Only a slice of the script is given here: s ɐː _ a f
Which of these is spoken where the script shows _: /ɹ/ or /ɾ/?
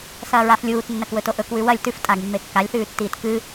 ɹ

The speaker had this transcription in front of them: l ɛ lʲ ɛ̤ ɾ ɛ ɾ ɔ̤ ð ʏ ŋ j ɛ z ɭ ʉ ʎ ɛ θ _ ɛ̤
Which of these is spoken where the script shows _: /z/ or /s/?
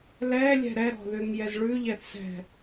s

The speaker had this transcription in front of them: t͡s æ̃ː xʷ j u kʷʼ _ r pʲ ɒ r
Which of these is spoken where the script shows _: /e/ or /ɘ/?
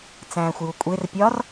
e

